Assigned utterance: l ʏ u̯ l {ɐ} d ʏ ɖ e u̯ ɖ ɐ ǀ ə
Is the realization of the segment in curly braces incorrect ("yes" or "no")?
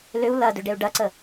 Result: no